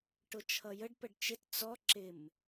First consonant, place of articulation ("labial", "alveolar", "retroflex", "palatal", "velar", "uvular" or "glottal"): retroflex